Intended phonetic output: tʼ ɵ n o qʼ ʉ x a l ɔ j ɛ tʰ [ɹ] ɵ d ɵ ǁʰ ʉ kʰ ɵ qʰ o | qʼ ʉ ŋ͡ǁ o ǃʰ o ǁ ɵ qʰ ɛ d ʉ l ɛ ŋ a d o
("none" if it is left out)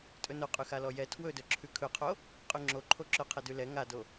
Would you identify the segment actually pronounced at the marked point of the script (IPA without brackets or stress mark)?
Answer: w